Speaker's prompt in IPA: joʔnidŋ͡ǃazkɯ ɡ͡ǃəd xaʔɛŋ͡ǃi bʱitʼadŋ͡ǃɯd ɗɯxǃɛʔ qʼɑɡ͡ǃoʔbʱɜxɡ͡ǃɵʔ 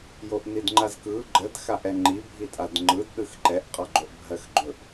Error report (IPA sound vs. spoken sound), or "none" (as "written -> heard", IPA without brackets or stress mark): none